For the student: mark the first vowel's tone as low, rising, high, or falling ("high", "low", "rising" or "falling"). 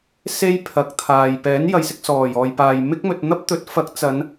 high